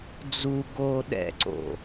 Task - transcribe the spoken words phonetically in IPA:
d͡z u ɡ oː ɗ ɛ̰ ǀ o̰

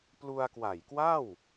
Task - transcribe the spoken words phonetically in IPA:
p l u˧ a̯ k w a˨˩ j k w a˥˩ w

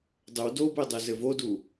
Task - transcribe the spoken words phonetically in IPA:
dˤ ɘ w d o b e dˤ e z ɘ v o d u

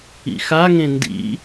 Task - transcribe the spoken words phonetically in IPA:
ḭ x a ŋ ẽ n d ḭ

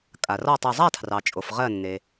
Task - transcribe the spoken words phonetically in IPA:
kʼ a˩ r ɔ˥˩ tˤ u˧˩ zˤ a˥˩ tʰ r ɑ˩ t͡ʃʼ o˩ f ʁ ɜ˧˩ nː e˩

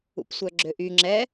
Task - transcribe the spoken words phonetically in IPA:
ṵ p sʷ œ ɡ͡ǁ ø ʔ y ŋ͡ǁ ɛ

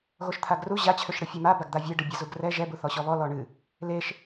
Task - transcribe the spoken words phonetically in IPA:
ɣ o ʃ t̪ʰ a ɡ r u ʑ a t͡ɕʰ ø ʃ ɽ ɨ fʲ o m a b a ɡ d̪ a vʲ e ɖ ɨ bʲ a z u ɡ r ɛ ʒ ɛ b u θ ɔ ɕ ɔ β ɔ l ɔ ɳ ɨ | l e ʃ

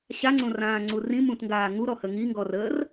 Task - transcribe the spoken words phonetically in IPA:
ɕ a ŋ͡ǀ õ r ãː ŋ͡ǀ u r ĩ m ũ t ŋ ɡ aː ŋ u ɾ ɔ h ə ŋ i ŋ ɡ ɔ r əː r

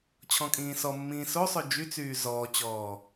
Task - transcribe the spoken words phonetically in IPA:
t͡ɕʰ ɔ̃ kʼ ĩː s ɔ mː ĩː s o sˤ ø d͡ʒ y t͡s yː z ɔː t͡ɕ ɔː

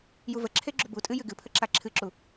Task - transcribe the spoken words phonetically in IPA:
j u v ə ǁʰ e ɡ͡ǁ u b u tʼ ɨ j ɨ ɡ ɨ pʰ ə ǁ a ǁʰ ɨ ǁ u

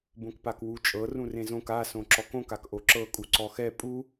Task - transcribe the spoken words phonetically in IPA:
b õ k p a k w u t͡ʃʼ ɤ r ũ r ẽ z õ k a s õ ǁ ɔ k õ k a k ʔ o ǁ ɤ kʼ u ǀ ɔ x ɛ pʼ u

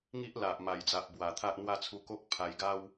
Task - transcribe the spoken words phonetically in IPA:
ŋ i˦ ʔ l a˨ ʔ m a˨˩ j d͡z a˨ ʔ b w a˨˩ t̪ʰ a˦ ʔ n̪ w a˥˧ t͡sʰ u˧ k o˦ k̚ pʰ a˧ j ɡ a˦ w

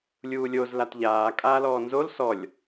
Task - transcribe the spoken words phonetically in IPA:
lʲ uː lʲ o z l a t ʎ aː kʼ aː l ɔː n z o l s ɔ lʲ

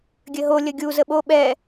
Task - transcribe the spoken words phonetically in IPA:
ɡʲ ɘ ɦ o lʲ ə ɡʲ u z ə ɓ o ɓ ɛ

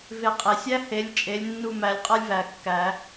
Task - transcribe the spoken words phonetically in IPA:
v e˦˨ qʼ e˨˩˦ sʲ æ˥ h e˨˦ lʲ t͡ʃʼ e˨˦ lʲ nː u˦˨ m æ˨˦ lʲ qʼ a˥ lʲ v æ˨˩ kː æ˨˩˦

